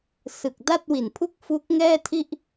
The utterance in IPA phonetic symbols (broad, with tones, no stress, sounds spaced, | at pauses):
s ɯ˨˩ k̚ d a˥˩ t̚ w i˨˩ n pʰ u˥˩ k̚ f u˦˥ k̚ ŋ ɛː˥˩ tʰ i˥˩ ʔ